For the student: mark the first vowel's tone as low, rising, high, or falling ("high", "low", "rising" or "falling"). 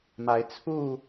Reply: rising